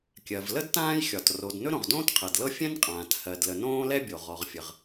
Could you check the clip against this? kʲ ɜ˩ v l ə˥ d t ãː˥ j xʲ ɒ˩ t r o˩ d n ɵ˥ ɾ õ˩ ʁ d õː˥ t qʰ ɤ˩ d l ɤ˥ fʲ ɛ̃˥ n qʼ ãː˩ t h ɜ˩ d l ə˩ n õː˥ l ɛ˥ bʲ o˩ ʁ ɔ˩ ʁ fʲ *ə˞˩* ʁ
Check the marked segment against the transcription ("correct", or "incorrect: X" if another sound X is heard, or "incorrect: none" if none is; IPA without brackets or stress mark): incorrect: ə˩